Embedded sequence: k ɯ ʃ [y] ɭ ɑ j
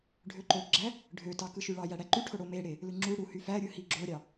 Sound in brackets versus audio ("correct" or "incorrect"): correct